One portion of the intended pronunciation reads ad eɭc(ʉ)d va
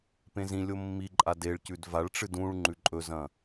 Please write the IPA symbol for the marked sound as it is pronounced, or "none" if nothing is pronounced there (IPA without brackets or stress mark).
ʉ